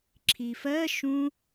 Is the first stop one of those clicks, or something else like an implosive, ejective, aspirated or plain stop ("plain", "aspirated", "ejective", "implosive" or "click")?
click